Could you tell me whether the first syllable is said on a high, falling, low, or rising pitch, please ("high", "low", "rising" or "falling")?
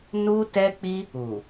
high